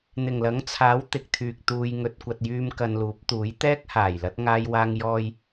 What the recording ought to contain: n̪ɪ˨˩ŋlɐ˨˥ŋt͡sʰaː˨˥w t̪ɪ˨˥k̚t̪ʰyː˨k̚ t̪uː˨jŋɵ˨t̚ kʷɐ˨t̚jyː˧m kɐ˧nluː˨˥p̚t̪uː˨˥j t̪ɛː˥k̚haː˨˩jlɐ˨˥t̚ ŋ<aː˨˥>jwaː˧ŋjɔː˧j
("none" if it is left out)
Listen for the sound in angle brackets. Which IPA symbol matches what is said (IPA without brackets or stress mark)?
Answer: aː˧